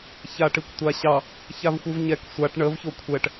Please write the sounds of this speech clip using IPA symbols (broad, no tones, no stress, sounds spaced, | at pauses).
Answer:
ç a ʈ i kʷ tʷ a ɕ ɑ | ç a v xʷ ɯ v ɲ ɛ k sʷ a ʈ ɳ ə v ç o kʷʰ ɛ ʈ